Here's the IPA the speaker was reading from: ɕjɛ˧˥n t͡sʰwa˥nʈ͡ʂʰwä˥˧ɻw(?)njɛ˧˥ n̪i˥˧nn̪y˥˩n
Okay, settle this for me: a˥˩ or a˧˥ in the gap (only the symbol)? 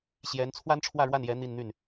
a˥˩